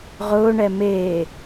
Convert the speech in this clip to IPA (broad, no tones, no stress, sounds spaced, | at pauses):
ʁ ʊː ɳ ɛ m eː